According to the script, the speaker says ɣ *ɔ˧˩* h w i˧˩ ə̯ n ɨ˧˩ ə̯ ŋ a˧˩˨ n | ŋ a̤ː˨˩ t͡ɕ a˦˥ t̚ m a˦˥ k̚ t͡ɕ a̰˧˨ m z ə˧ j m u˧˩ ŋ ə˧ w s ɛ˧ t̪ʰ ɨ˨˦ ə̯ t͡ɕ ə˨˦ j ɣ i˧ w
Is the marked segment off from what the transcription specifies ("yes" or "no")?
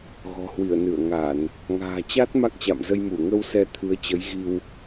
yes